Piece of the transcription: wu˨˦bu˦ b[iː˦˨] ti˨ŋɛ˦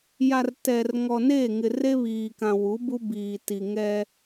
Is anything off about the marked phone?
yes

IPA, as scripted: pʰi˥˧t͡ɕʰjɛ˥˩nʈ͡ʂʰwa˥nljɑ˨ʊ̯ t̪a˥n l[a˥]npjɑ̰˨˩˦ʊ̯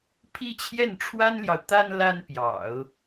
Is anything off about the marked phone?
no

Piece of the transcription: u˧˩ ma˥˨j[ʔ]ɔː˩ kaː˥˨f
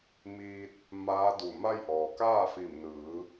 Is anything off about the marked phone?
no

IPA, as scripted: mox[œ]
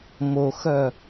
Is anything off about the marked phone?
no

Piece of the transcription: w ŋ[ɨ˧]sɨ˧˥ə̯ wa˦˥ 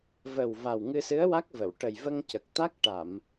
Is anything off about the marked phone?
no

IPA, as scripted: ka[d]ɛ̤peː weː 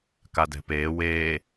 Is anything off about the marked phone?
no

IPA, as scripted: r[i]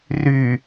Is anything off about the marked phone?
yes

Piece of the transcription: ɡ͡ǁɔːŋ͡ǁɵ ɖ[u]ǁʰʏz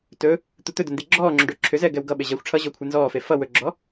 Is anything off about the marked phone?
yes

